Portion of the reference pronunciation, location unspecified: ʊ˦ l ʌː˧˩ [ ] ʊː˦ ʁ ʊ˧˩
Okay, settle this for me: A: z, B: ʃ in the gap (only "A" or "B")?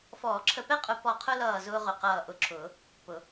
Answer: A